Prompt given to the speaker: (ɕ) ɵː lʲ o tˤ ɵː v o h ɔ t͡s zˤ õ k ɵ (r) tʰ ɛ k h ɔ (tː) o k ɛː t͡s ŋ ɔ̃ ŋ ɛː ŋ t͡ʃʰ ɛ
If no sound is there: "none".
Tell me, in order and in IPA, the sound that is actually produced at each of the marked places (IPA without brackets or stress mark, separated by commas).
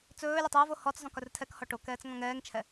t͡s, r, ʈ